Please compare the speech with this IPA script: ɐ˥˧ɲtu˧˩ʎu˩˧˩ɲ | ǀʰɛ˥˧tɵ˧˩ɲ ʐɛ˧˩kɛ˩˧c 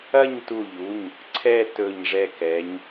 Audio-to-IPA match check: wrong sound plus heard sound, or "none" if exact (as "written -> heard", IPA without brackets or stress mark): c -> ɲ